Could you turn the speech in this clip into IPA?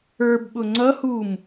ə˞bɓʊ ŋ͡ǀʌhum

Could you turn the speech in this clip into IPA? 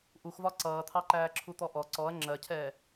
ʔuxvɒ ǀʌːt̪ʰɑǃæː ǁʰut̪ɔʔɔ ǀɔɐ̯ ŋ͡ǁɜcʰɛː

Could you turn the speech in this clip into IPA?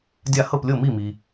dʲa˥˩ hɤ˥˩plʲɤ˥˩ mi˥˩mi˨

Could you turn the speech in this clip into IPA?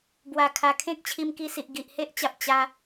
bwa˨˩ kʰa˨˩kʰẽ˦k̚ t͡ɕʰi˧mki˧si˨ʔ ɡi˨ʔhe˦ʔt͡ɕa˨p̚ t͡ɕa˧

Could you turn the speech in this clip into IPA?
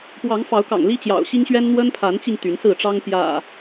pwɑ˨˦ŋfɑ˨˦ʊ̯kɑ̰˨˩ŋ li˦t͡ɕjɑ̰˨˩ʊ̯ɕi˦ŋɕɥɛ˦n n̪wə˦npʰa˨˦nt͡ɕi˧ŋ t̪y˨˦nsɹ̩˥˨ʈ͡ʂɑ˦ŋ pjä̰˨˩

